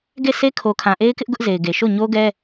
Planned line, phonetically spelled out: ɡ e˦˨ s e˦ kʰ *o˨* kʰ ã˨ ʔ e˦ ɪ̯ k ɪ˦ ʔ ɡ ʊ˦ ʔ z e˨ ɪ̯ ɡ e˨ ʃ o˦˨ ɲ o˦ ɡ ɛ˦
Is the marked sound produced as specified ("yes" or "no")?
yes